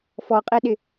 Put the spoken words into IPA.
fɔqʼɛɗɪ

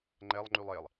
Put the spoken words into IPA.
ŋ͡ǃɛlˠ ŋ͡ǃylˠelˠ

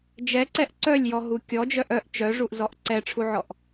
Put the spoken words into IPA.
d͡ʒɛǀɛʔ ǀœlʲjɔɦu kʲɔd͡ʒœʔ œʔ t͡ʃœʐuʔzɔʔ ǀɛʈ͡ʂʰuʕɔʔ

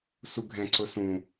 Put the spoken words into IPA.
suɡʱɛ̃ ǀʊsũ

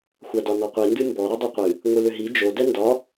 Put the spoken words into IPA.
xʷadɒnɔqʷi ndɨmbɔ ɾɔdˤiqʷɨ | ŋʷɨlʏɦi d͡ʒo dɛndɒ

